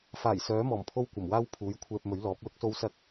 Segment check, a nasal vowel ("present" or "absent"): absent